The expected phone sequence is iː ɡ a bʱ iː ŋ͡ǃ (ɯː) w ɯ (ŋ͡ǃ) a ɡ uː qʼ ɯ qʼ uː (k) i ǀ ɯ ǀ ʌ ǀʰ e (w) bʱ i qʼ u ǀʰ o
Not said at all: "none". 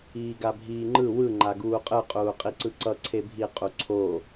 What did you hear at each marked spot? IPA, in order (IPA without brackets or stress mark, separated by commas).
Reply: ɯ, ŋ͡ǃ, qʼ, none